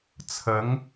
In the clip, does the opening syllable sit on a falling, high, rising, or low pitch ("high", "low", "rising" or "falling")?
rising